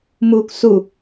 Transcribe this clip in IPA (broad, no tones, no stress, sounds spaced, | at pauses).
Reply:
m uː k s u